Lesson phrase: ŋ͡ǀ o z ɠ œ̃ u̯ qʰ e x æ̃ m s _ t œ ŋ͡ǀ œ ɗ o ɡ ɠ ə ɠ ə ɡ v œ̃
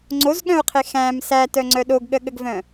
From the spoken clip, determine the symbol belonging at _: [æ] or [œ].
æ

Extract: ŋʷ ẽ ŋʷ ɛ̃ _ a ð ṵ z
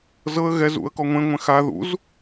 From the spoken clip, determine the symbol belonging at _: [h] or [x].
x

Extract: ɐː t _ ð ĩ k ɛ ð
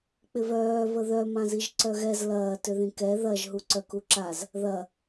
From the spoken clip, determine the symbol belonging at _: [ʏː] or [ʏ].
ʏ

